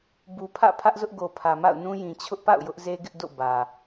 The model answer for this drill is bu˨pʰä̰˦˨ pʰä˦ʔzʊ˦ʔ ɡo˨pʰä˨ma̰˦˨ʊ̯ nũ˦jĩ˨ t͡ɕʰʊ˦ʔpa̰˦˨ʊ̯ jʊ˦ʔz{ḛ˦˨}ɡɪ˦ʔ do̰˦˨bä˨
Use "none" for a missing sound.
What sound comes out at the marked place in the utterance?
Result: e˦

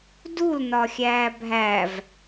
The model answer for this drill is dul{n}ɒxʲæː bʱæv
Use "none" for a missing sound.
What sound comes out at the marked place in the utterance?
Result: n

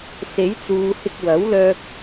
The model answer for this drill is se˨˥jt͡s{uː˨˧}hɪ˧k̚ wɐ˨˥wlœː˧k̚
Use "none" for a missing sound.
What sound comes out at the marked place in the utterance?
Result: uː˨˧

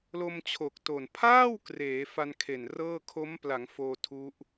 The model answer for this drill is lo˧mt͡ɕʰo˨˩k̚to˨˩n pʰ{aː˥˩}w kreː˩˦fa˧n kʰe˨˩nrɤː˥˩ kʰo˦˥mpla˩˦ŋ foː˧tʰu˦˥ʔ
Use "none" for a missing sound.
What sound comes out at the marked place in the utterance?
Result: aː˥˩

